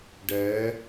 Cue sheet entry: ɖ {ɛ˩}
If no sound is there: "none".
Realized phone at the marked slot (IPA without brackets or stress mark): ɛ˧˥